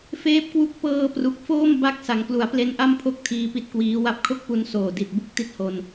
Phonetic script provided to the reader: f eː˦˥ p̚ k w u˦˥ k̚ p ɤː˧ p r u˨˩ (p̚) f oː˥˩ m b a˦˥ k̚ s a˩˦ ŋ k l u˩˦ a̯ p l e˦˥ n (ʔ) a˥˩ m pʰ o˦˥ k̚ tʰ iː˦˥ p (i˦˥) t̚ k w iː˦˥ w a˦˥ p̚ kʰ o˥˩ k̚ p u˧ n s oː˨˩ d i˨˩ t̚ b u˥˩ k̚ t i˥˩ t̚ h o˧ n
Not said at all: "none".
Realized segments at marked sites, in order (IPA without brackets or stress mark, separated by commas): k̚, ʔ, i˦˥